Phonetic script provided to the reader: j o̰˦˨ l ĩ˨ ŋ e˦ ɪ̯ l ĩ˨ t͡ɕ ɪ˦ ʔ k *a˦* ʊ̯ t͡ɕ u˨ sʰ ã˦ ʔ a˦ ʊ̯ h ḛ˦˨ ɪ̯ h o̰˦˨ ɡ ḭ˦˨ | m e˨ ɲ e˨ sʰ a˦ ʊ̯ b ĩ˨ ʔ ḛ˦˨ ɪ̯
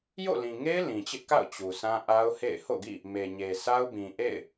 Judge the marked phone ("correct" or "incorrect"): incorrect